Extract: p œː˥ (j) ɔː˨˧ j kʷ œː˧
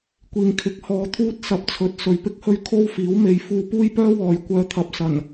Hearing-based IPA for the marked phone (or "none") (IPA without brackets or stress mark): w